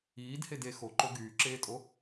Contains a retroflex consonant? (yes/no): no